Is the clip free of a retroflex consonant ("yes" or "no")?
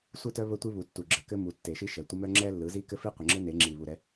yes